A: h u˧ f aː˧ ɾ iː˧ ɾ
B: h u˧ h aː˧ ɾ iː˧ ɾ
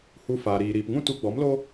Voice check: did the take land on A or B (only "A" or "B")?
A